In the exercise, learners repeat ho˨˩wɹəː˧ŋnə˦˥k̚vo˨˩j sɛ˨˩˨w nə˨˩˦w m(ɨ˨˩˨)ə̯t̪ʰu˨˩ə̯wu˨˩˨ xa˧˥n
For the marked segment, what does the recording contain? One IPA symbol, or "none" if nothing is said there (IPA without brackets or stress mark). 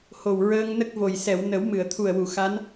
ɨ˨˩˨